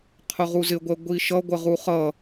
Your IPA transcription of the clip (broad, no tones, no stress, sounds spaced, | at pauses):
qʰ ʊ ʁ u z ɪ ɡʷ ɛ ɡʷ i ʃ ʌ ɡʷ ə ʁ u χ ʌ